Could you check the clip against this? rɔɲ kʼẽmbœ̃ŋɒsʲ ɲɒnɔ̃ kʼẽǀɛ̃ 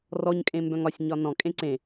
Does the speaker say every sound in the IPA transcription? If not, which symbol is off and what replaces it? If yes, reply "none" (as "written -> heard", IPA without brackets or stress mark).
ɛ̃ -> ẽ